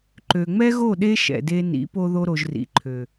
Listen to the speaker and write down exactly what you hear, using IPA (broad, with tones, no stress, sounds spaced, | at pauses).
ǃ ø˨ ŋ͡m ɛ˦ ɣ o˦˨ ɗ e˦ ʃ ɛ̰˨ d e˧ n ḭ˨˦ p o˧ ð o˧ ɾ o˨ ʒ r ḭ˨ ǃʰ ø˨